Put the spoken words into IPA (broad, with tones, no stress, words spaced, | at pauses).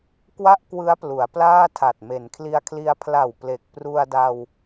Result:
kwa˥˩ʔkwɯ˦˥a̯plu˩˦a̯ plaː˥˩tʰa˨˩t̚ me˩˦n kʰli˧a̯kʰli˧a̯ pʰla˨˩w ple˨˩k̚ pru˧a̯da˧w